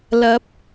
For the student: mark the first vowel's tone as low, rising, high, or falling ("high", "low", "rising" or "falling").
rising